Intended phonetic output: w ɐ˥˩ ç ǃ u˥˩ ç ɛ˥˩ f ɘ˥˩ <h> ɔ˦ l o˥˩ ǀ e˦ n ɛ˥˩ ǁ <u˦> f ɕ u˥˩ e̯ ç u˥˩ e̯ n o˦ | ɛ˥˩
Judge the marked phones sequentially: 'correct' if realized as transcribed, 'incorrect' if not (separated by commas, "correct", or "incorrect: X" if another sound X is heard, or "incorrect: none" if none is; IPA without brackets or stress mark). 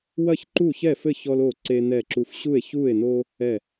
incorrect: ç, correct